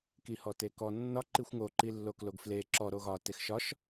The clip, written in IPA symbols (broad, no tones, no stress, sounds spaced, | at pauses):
k i h ɔ t e k ɔ nː ɒ ǃ i xʷ ŋ o ǃ i lː o k l o ɡ f l e ǁ ɔ ɾ o ɣ ɒ t e x ʃ ɒ ʃ